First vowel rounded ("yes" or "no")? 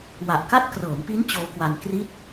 no